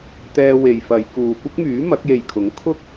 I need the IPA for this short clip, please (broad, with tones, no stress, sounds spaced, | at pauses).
t̪ ɛː˧ w e˨ j f ɐ˨˧ j k uː˨ kʷ ɪ˥ k̚ m yː˨˥ m ɐ˨˥ k̚ j e˨ j kʰ ʊ˨˥ ŋ kʰ ʊ˥ k̚